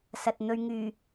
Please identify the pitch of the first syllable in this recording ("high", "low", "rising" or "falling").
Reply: low